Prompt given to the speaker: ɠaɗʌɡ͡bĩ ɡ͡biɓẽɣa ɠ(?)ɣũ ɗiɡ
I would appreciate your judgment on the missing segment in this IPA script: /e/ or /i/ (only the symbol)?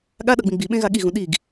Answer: i